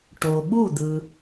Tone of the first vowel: low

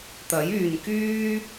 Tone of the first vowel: rising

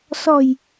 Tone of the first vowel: low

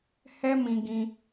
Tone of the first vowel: high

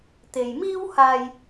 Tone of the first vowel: low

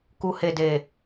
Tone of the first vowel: low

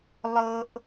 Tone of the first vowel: high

